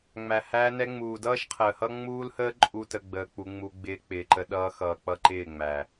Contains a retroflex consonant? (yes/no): no